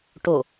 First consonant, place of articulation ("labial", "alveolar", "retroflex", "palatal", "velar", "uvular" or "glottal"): retroflex